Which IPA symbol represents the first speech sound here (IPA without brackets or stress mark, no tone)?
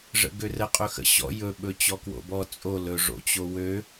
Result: ʐ